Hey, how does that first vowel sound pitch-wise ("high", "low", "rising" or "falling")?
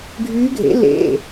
rising